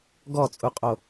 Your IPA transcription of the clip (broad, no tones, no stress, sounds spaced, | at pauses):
ɡ ɔ t͡sʼ u qʼ o